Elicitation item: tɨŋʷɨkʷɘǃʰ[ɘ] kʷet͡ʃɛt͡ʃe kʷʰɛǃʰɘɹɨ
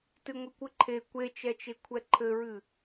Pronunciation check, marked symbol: incorrect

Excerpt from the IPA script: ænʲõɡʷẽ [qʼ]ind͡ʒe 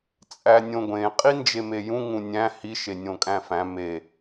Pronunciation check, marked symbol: correct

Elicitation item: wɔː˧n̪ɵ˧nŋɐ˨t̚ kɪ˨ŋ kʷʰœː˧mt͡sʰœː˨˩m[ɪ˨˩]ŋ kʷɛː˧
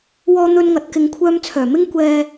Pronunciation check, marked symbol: incorrect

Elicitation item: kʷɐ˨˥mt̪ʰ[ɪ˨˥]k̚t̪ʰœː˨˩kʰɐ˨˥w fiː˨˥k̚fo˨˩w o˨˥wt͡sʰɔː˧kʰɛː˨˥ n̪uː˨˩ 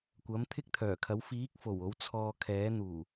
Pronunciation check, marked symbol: incorrect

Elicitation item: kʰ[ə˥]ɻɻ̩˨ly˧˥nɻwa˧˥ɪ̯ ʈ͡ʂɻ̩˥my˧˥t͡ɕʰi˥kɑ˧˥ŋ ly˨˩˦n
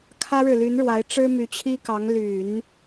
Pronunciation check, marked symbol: incorrect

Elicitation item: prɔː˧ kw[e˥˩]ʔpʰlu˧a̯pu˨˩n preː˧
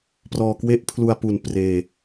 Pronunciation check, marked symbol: correct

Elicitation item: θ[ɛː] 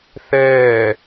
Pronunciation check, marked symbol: correct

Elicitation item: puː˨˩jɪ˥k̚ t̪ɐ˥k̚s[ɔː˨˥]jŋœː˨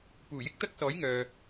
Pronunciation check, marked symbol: correct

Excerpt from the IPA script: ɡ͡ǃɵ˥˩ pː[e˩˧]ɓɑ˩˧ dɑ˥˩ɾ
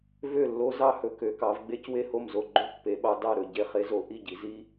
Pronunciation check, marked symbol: correct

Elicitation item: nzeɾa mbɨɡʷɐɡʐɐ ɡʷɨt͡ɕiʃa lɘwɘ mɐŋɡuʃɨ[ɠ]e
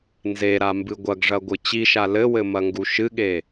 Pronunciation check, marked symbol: correct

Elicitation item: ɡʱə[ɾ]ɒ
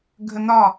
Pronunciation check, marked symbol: incorrect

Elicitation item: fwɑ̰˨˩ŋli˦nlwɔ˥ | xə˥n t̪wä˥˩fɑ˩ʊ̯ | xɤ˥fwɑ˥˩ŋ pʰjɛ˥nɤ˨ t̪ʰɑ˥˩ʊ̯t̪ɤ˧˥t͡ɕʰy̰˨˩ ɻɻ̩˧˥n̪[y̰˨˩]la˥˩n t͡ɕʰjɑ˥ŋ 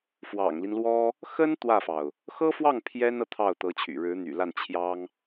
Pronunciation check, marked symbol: correct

